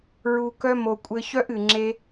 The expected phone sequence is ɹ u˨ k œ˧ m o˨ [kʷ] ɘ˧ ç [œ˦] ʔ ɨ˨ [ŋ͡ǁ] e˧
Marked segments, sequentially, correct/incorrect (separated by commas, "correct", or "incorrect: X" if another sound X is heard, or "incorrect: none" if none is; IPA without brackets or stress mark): incorrect: kʷʼ, correct, correct